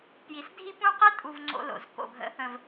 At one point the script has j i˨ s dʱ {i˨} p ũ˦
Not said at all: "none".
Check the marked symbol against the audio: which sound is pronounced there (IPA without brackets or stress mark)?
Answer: i˦